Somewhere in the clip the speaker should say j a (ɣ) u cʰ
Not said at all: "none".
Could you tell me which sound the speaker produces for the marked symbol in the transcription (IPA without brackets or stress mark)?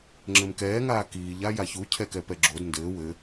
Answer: ç